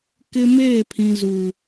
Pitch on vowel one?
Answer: high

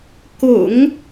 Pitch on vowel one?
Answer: low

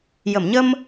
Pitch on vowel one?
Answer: low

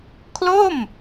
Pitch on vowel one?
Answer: falling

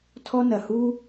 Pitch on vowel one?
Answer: high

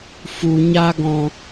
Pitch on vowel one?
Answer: low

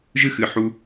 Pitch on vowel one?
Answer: high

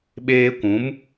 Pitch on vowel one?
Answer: high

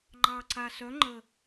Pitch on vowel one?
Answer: low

